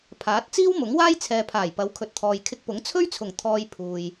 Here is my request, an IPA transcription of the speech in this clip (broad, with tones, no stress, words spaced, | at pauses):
pʰaː˨˥t̚ t͡siː˥wmʊ˨˥ŋ waː˥jt͡sʰɛː˨pʰaː˨˩jpɐ˨˥w kʰɵ˨t̚t̪ʰɔː˨jkʰɪ˧k̚pʊ˨˥ŋ t͡sʰɵ˥ɥt͡sʰʊ˨˩ŋ t̪ʰɔː˧j pʰuː˨j